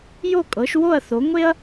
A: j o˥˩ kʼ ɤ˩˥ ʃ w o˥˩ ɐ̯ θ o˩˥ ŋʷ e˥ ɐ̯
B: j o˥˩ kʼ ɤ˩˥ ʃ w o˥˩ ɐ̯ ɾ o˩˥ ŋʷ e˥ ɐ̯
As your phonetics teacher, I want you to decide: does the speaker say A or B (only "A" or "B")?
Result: A